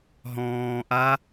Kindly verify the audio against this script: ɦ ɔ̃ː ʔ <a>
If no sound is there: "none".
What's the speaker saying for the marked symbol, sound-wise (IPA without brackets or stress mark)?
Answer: a